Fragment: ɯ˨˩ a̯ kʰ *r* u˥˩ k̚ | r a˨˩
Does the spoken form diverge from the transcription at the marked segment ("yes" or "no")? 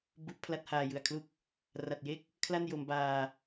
yes